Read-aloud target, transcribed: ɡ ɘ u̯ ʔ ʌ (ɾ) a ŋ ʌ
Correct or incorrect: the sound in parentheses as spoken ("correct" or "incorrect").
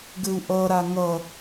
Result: correct